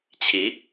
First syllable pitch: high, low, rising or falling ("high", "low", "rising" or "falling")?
rising